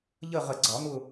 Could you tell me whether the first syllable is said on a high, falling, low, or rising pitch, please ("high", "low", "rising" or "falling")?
falling